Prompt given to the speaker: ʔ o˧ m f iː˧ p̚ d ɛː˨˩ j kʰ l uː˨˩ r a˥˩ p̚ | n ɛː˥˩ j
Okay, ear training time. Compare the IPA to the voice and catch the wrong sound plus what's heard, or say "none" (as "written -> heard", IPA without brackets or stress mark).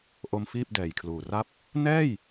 iː˧ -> iː˥˩